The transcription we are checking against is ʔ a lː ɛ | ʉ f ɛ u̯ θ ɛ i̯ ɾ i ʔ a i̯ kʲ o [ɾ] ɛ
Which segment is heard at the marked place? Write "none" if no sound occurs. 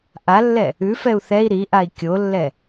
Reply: lː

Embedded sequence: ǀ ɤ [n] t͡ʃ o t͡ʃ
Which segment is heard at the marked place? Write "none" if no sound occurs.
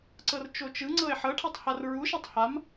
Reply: r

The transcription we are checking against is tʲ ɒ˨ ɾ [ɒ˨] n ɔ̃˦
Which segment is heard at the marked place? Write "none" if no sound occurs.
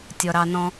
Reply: ɑ˨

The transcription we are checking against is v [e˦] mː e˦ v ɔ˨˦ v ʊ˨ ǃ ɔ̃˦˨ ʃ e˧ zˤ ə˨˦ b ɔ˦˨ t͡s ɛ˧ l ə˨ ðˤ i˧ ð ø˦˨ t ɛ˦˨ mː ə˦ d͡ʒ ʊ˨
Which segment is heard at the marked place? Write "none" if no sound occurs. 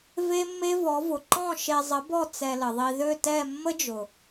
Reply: e˦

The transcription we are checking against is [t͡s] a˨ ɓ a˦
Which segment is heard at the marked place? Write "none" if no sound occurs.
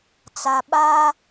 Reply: t͡s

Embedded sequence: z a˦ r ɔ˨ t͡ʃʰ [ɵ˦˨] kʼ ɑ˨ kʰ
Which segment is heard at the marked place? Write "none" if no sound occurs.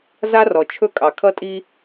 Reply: ɵ˦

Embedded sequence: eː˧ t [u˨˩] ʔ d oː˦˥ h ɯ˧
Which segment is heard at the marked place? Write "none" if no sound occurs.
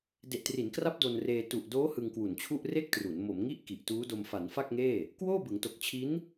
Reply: u˨˩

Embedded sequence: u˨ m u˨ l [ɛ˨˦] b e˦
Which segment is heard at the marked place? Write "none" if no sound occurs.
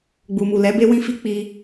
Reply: ɛ˨˦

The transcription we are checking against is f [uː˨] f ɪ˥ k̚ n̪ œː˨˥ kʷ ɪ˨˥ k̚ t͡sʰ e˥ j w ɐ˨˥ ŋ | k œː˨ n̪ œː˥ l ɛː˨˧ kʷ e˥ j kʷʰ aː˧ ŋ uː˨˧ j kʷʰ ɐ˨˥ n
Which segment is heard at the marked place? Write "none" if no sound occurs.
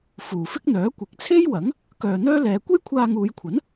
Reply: uː˨˩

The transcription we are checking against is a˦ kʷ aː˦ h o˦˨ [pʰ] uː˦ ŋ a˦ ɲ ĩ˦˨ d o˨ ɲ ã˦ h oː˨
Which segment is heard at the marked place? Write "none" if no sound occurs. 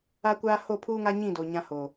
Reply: pʰ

